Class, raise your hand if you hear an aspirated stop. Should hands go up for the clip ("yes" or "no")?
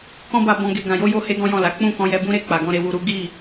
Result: no